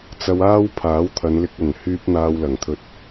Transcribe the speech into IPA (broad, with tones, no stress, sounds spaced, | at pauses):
t͡s ɐ˧ w aː˥ w pʰ aː˨˥ w t̪ʰ ɐ˨˧ n l ɪ˧ k̚ ɐ˨˩ n h yː˧ p̚ n̪ aː˧ w l ɐ˨˩ ŋ t̪ʰ ɵ˧ t̚